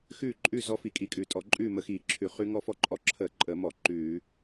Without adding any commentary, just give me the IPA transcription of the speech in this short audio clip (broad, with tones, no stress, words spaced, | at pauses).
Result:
xʉː˥˨ǃʼʉ˥˨ zɔ˦˥ fi˧˩˧kʼi˧˩˧kʼʉː˨˩tʼɔ˧˩˧ ǃʼʉː˥˨mə˧˩˧ xiː˧˩˧ǁʰʉ˧˩˧χʉ˦˥ ŋɔ˥˨fɔ˥˨ǃʼɔ˦˥ ǁʰəː˧˩˧ǃʼəː˧˩˧mɔ˧˩˧ ǃʉː˧˩˧